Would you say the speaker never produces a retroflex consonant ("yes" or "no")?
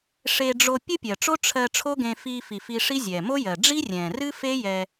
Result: no